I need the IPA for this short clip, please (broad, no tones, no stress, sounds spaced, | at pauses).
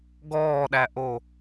ɡ ɔː ɗ æ ʔ o